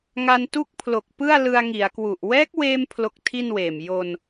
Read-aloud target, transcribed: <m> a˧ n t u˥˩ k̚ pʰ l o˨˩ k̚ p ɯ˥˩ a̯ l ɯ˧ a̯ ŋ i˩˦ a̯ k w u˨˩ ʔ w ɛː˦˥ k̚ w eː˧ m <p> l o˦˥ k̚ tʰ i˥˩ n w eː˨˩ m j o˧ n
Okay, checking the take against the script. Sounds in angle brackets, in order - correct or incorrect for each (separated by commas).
incorrect, incorrect